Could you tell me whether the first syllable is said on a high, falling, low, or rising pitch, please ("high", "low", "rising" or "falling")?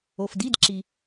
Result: low